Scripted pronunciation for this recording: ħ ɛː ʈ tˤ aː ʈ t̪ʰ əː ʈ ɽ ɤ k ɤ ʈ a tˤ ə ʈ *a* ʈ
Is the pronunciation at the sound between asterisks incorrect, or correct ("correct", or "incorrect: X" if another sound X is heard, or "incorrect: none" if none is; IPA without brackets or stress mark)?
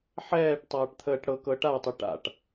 incorrect: a̰